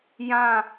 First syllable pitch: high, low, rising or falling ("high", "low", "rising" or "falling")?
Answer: falling